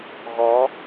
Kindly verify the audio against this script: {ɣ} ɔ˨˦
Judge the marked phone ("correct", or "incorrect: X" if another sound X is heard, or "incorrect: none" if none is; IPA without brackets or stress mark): correct